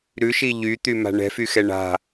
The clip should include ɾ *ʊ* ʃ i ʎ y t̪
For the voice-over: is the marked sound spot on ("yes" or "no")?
no